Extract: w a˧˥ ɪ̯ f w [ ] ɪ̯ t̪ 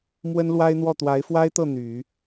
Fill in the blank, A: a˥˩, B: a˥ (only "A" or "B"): B